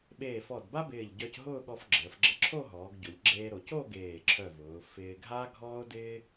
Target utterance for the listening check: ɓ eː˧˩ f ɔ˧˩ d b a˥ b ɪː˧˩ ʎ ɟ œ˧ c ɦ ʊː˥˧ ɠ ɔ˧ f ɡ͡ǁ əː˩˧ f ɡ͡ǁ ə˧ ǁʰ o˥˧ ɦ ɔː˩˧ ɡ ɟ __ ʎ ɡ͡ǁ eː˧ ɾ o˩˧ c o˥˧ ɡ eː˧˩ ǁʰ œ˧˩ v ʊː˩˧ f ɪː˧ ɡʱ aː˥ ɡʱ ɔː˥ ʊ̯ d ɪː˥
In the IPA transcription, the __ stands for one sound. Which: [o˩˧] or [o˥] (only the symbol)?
o˩˧